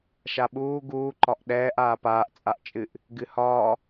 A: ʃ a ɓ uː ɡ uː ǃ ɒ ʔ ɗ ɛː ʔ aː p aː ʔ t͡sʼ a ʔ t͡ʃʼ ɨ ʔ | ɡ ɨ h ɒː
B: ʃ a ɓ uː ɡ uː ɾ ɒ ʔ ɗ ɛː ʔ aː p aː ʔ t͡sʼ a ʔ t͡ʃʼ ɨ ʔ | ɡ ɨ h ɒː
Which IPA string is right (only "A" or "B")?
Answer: A